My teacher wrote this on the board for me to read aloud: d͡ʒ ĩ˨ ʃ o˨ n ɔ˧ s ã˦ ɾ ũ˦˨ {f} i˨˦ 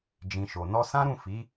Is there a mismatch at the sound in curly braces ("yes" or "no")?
no